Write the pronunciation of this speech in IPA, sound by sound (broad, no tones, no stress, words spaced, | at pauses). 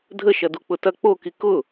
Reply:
dʱəʃɐdu k͡pʊtɐ k͡poki kʊ